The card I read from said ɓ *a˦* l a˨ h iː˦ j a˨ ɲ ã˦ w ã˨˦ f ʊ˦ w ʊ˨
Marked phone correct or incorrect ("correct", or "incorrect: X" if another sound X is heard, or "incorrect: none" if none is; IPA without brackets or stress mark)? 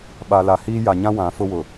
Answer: incorrect: a˨